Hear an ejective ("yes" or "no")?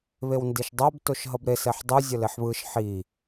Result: no